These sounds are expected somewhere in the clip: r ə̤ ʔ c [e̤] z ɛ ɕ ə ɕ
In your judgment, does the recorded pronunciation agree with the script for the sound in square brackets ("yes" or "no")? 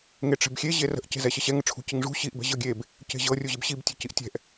yes